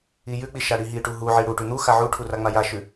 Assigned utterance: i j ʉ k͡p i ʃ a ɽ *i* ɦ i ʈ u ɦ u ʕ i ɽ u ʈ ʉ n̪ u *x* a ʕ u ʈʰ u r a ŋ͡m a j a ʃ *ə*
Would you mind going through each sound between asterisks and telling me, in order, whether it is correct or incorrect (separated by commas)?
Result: correct, correct, incorrect